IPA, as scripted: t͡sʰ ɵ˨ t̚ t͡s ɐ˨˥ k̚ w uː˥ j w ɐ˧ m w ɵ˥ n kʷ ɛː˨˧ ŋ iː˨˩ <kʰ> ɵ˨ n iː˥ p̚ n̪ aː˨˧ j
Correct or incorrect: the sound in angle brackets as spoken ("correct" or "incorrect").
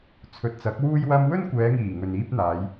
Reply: incorrect